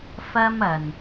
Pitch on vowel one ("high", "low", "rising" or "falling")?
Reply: high